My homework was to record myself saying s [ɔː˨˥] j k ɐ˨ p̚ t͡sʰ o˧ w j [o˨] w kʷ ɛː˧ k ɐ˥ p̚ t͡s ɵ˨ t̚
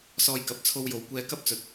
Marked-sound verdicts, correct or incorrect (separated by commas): incorrect, correct